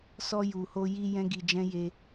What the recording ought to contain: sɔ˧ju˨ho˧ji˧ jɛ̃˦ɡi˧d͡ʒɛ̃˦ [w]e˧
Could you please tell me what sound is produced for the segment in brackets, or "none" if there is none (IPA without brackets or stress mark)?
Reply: j